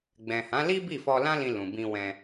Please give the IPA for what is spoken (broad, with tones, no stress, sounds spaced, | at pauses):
ɡ͡b ɛ̃˨ h ã˨˦ l i˦ b i˦˨ f ɔ˧ l ã˦ l ĩ˧ l ũ˨ b ĩ˧ w ɛ̃˧